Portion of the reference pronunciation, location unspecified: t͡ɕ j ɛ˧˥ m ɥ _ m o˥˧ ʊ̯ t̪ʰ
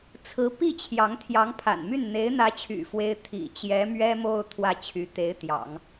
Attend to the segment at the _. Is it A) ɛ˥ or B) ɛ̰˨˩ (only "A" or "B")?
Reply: A